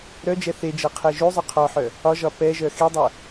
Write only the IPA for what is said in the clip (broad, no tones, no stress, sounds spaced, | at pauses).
ɾ œ d͡ʒ ɛ θ e d͡ʒ ɤ qʰ ɛ ʒ u zˤ œ qʰ ɔ ħ œ | ɒ ʒ ɒ p ɛ ʒ œ x i dˤ œ